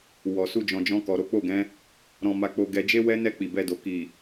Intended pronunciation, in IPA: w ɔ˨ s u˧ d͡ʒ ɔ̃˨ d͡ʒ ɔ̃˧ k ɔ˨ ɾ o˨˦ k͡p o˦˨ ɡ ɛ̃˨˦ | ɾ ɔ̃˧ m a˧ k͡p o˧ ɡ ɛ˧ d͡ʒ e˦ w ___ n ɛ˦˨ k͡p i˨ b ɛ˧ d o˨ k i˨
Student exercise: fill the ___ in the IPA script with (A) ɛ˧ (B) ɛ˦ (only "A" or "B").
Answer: B